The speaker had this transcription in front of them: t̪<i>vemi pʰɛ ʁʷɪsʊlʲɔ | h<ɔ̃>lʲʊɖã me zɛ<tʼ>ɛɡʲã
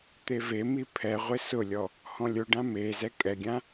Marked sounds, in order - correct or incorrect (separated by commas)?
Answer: incorrect, correct, incorrect